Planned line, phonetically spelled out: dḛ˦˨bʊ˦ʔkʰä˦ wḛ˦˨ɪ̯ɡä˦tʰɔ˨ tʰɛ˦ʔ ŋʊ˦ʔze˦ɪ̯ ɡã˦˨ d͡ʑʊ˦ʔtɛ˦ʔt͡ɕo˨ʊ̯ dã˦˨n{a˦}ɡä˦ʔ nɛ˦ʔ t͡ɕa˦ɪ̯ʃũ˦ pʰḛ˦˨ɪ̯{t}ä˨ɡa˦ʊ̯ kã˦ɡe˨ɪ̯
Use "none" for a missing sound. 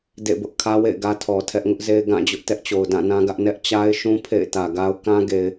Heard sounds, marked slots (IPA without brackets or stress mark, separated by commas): ã˦, t